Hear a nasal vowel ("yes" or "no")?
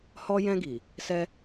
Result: yes